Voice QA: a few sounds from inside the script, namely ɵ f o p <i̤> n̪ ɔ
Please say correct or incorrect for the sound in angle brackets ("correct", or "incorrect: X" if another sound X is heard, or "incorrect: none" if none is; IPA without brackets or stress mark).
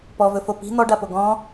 correct